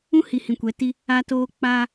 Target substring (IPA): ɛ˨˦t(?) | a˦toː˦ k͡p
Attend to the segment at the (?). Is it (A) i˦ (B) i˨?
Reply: A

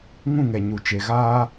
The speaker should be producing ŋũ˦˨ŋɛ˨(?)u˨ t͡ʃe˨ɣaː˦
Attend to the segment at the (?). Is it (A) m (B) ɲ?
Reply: B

